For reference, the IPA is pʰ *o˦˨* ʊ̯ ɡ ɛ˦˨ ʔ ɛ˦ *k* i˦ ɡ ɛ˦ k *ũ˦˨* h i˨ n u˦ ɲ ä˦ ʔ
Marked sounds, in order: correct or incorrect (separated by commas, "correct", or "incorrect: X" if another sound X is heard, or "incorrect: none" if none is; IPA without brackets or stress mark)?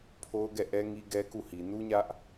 incorrect: o˦, incorrect: ŋ, incorrect: u˦˨